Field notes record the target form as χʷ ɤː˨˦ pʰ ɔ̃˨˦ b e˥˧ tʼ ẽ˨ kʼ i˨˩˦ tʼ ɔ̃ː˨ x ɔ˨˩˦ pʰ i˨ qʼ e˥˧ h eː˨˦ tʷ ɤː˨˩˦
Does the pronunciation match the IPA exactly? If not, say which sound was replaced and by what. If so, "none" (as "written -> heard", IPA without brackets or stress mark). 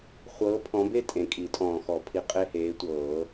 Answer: none